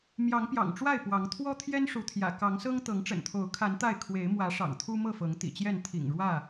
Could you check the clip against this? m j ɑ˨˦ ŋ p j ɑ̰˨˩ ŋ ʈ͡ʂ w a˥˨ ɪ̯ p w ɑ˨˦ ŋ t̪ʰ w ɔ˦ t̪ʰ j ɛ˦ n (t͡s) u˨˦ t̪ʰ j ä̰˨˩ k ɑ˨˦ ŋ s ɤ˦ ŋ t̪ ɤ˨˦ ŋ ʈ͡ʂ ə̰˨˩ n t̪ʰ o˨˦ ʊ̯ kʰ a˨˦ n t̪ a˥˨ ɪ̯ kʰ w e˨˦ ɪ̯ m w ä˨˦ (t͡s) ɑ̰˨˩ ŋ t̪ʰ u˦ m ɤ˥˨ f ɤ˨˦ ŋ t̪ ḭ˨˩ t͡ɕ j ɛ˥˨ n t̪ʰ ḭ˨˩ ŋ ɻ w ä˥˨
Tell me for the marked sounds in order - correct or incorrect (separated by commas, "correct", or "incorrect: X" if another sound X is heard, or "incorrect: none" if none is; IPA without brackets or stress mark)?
incorrect: ʂ, incorrect: ʂ